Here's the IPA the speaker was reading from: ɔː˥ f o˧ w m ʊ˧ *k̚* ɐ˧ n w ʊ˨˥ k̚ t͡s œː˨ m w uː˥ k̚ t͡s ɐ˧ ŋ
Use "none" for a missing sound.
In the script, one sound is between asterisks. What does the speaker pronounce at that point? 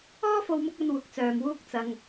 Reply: k̚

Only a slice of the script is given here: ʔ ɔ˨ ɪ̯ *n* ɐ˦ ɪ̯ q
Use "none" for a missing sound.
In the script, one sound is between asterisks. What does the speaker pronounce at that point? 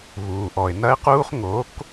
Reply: n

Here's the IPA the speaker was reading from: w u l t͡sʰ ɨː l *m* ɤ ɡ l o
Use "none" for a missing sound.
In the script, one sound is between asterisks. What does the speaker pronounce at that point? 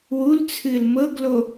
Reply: m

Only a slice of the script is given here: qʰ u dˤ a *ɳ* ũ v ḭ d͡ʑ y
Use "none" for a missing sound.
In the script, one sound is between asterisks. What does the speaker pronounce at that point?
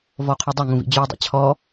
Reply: ŋ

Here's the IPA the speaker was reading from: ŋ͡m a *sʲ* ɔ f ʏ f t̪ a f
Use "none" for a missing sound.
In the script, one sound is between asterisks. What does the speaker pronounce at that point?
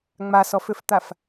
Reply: s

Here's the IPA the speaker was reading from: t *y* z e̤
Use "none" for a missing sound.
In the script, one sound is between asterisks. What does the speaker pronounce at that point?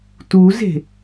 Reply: u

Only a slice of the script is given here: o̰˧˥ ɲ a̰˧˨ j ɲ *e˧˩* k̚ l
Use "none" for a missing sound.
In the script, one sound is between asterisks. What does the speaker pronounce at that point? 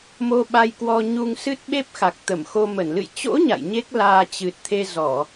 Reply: e˦˥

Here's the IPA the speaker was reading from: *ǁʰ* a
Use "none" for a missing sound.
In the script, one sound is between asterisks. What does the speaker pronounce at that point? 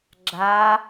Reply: ɡ͡ǁ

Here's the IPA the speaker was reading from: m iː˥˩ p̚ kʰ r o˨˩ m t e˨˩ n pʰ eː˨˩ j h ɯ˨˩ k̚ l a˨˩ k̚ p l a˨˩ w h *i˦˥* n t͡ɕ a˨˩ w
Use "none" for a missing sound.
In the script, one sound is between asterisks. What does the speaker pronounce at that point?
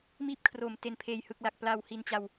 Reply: i˨˩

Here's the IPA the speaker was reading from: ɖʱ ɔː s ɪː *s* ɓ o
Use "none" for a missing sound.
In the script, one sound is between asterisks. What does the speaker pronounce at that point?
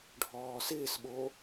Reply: s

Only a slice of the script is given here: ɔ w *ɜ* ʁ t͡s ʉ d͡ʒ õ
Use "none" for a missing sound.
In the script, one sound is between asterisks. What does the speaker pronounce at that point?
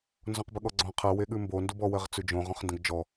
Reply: ɜ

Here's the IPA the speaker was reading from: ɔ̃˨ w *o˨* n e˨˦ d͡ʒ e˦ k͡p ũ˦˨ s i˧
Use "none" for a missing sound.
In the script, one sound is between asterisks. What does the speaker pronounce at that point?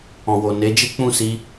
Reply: o˨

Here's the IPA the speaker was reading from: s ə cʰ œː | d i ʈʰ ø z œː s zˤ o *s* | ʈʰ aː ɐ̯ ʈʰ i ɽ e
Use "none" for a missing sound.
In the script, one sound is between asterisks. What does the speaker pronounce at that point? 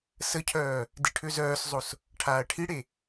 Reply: s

